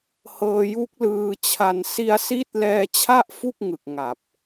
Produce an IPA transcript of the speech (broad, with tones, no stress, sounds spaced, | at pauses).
h ɤː˧ j u˦˥ k̚ l ɯː˧ t͡ɕʰ a˧ n s i˧ a̯ s i˦˥ t̚ l ɛː˧ t͡ɕʰ a˥˩ ʔ f u˥˩ k̚ ŋ ɯ˨˩ k̚ ŋ a˨˩ p̚